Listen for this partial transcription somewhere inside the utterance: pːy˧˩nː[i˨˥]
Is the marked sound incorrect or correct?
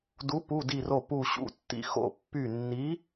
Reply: correct